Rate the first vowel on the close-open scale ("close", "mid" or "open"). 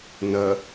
open